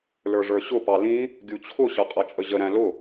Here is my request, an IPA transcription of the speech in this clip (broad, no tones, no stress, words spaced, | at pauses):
lə˞ʐə˞ɕʊ pɑlĩ | ɡʲut͡ɕʰʊ ɕʌqʼʌt͡ʃʼəʑə ɾæ̃lʊ